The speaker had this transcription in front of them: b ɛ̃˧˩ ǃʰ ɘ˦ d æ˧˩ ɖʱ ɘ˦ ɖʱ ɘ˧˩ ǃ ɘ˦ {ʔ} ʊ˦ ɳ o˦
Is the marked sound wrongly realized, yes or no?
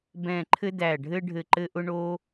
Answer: no